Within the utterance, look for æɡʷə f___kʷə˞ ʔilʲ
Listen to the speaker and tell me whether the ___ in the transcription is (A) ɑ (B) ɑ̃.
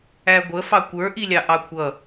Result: A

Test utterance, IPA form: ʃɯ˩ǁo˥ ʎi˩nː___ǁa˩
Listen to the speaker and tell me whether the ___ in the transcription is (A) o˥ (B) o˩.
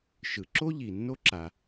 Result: A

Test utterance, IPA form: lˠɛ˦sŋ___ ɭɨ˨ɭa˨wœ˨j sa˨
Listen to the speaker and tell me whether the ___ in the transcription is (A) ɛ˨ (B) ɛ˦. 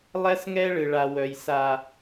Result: B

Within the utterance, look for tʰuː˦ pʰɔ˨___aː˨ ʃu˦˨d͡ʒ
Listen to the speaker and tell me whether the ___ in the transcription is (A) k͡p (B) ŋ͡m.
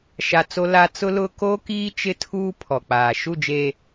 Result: A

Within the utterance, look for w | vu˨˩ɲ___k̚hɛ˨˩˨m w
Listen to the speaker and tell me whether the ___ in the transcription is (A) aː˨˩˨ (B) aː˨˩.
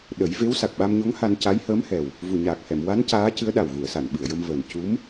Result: B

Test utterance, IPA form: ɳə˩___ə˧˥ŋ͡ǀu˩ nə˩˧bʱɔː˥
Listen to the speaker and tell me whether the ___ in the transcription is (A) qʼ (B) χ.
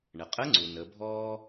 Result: A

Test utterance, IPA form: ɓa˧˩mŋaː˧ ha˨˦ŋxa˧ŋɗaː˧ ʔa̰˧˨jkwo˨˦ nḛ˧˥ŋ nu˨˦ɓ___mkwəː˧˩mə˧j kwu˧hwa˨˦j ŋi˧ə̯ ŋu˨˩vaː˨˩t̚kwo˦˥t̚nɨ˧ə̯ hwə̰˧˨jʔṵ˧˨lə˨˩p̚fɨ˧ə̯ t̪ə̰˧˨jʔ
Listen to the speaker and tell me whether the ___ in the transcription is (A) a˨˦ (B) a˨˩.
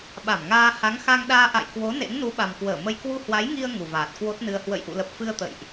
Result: B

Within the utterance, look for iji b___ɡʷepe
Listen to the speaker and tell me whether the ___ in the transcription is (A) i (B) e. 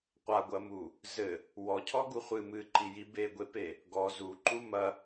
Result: B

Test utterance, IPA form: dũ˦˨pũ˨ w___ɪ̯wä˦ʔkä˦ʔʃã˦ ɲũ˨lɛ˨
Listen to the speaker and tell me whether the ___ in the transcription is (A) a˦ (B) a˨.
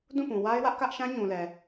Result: A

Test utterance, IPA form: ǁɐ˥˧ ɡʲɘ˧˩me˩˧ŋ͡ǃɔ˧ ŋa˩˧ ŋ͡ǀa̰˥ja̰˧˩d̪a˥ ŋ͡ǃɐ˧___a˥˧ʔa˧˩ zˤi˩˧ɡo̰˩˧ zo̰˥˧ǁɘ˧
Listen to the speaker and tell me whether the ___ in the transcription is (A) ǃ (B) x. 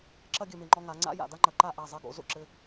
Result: A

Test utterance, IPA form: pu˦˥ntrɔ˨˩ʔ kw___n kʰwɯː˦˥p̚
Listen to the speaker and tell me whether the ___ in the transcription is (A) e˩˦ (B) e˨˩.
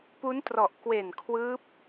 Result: B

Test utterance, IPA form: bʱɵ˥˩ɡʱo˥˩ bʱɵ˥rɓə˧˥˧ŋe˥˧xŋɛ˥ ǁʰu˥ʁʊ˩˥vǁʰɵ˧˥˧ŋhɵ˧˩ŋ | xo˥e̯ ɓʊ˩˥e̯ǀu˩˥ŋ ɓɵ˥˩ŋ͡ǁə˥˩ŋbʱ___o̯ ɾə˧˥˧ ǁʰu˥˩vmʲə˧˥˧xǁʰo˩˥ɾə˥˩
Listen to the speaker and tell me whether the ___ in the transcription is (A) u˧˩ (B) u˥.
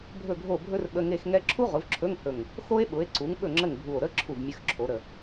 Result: A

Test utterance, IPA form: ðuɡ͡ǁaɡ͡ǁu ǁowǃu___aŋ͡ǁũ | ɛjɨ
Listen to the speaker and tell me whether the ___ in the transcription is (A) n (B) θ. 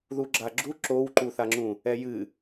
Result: B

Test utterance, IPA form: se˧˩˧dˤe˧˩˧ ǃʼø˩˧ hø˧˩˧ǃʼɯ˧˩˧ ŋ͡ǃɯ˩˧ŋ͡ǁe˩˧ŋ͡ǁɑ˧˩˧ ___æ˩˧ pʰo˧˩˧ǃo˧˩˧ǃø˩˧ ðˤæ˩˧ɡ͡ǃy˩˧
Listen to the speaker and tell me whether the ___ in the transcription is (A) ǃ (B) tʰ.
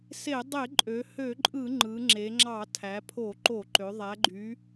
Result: B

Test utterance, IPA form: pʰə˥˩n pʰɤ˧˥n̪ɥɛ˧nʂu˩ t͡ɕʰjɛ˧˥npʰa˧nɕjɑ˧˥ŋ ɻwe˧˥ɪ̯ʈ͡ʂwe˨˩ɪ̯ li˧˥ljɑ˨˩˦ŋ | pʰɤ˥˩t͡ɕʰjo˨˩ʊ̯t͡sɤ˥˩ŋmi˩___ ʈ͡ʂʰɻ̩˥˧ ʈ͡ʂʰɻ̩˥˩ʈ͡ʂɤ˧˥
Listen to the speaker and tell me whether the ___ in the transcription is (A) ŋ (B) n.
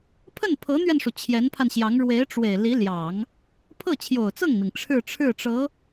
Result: A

